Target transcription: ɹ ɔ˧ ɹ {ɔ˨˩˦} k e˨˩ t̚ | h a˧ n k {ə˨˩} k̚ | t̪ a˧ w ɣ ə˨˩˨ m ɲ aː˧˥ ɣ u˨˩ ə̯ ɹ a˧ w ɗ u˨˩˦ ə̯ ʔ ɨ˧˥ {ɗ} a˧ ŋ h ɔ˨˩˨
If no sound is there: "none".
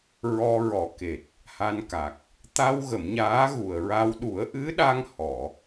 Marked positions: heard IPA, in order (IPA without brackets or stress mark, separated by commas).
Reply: ɔ˨˩˦, a˨˩, ɗ